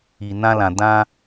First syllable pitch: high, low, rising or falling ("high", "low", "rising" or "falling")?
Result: low